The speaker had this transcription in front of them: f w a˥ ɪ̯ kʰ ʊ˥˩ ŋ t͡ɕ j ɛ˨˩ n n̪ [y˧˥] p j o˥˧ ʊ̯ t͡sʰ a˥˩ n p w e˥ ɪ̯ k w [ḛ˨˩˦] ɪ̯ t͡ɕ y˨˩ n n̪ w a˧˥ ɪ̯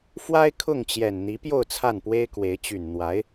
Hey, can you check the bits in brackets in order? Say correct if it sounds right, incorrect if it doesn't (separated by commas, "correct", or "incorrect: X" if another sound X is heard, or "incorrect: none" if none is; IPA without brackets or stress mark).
incorrect: i˧˥, incorrect: e˧˥